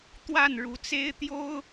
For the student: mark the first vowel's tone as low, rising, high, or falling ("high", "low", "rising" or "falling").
falling